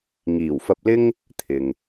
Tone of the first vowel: low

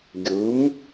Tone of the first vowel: rising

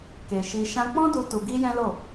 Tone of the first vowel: low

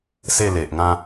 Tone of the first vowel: falling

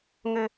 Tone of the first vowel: low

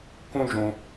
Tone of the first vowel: high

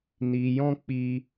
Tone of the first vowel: low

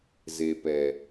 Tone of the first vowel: low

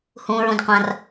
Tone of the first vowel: low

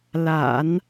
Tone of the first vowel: low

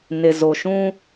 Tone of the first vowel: low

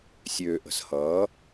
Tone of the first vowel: low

